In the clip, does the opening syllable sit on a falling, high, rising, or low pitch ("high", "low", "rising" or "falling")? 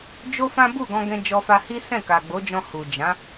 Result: high